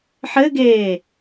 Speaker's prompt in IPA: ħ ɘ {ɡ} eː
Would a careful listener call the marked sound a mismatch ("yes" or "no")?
no